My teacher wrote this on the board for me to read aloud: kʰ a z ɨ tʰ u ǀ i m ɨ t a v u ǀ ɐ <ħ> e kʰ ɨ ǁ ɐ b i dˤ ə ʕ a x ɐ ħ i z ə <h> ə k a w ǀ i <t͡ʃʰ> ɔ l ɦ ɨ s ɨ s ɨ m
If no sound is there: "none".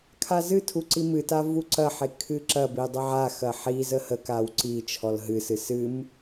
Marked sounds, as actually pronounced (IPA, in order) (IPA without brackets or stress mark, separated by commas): ħ, h, t͡ʃʰ